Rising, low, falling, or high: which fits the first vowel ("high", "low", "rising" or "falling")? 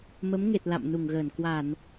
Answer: rising